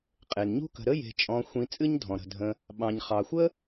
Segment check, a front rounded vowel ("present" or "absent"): absent